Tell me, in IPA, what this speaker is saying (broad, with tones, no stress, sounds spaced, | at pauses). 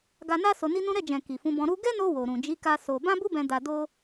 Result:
ɡ a˧ n a˦ s o˧ n i˦ n ũ˦ ɾ ɛ˦˨ d͡ʒ ɛ̃˨ k i˨ f ũ˨˦ b ɔ̃˧ ɾ u˧ ɡ ɛ˦ n o˧ w o˨ ɾ ũ˨ d͡ʒ i˨˦ k a˧ s o˧ b ã˦ b u˦ b ɛ̃˧ d a˧ d o˦